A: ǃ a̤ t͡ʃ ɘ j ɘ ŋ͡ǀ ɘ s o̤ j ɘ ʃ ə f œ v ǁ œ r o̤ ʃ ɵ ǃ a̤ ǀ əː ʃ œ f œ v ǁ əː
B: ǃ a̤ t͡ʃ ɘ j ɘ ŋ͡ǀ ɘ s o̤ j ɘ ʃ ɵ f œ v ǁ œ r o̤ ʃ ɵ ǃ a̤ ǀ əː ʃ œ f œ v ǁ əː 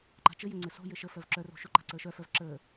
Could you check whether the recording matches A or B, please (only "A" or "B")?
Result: A